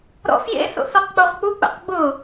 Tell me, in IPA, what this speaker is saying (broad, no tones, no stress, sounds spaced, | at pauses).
ɾ ɔ̰ f j ḛ θ o̰ θ ɔ q k͡p o ʁ k͡p u k͡p ɛ̰ q ɡ͡b ʊ